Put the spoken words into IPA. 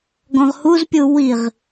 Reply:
ɡ ɔ̃ ʁ h u z pʲ u w i ʁ

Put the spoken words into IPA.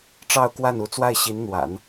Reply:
ʈ͡ʂ ɑ˥˧ ʊ̯ k w a˥˩ n u˧˥ t͡s w a˥˩ ɪ̯ ɕ i˧˥ n n̪ w a̰˨˩˦ n

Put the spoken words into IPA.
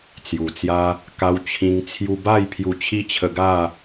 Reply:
t͡s j u˨˩ t͡s j a˦ | k a˧ w t͡ɕʰ ĩ˧ ŋ t͡sʰ j u˧ b a˥˧ j pʰ j u˧ t͡ɕʰ i˦ t͡ɕʰ ə˧ ɡ a˥˧

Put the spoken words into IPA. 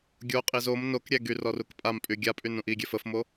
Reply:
ɡʲ o qʼ i z o m n o k ɾʲ ɛ ɡ y r ɔ r u k pʼ a m pʼ y ɡʲ a pʼ y n ũ ʔ i ɡʲ ɛ f ə f m o

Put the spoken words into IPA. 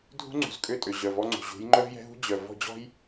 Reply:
dʱ ṳ˦ ŋ͡ǀ ṳ˨ z kʼ ø˦˨ tʼ ø˨ ʑ œ˨ v ɔ˦ ŋ͡ǀ ṳ˨ ʑ ṳ˨˦ j ŋ͡ǃ œ˦ v j ɛ̤˦ ɦ ṳ˦ d͡ʑ œ˨ v ɔ̤˦˨ d͡ʑ ɔ̤˦ j

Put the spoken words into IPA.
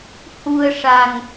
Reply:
h u˧ ə̯ ʂ a˨˩ ŋ

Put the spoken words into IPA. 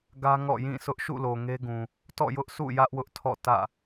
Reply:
ɡ ä˦ ŋ ɔ̰˦˨ j ĩ˦˨ sʰ ʊ˦ ʔ ʃ ṵ˦˨ l o˨ ŋ e˦ ɡ ũ˨ | t ɔ̰˦˨ j ʊ˦ ʔ sʰ ṵ˦˨ j ä˦ ʔ w ʊ˦ ʔ tʰ ɔ̰˦˨ t ä̰˦˨

